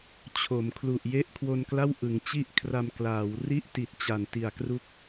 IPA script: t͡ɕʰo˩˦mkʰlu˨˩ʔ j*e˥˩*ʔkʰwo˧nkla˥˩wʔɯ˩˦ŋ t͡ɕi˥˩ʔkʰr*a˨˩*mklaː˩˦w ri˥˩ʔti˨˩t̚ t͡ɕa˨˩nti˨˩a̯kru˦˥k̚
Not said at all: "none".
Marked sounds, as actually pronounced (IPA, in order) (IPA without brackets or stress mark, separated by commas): e˥˩, a˧